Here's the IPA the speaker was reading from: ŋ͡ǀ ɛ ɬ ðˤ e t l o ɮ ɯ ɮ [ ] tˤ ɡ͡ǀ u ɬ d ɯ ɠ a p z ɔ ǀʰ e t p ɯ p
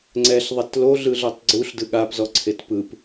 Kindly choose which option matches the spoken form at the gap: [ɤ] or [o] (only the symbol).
ɤ